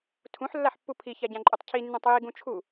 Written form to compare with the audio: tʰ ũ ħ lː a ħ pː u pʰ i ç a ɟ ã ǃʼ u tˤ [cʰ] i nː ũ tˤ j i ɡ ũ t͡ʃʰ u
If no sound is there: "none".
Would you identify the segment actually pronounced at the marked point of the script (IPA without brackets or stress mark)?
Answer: cʰ